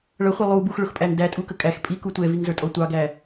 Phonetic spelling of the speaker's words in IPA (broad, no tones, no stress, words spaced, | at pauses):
ɭʌχʷɪ lˠu buxɭʊxpʼæŋ dætʼukə kʼæx pʼiku tʷɛviŋzə˞tʼɔ tʷɑɡæ